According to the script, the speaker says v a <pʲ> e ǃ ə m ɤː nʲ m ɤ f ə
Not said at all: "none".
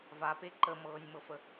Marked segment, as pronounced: p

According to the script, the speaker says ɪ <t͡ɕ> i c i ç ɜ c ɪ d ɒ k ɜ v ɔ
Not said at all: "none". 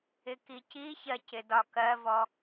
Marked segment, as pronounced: k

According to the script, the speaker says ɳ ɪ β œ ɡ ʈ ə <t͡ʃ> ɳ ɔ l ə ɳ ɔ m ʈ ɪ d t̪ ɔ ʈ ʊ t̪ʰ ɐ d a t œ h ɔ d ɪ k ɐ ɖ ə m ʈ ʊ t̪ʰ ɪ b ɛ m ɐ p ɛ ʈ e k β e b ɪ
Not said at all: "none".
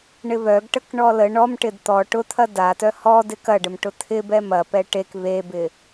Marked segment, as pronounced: k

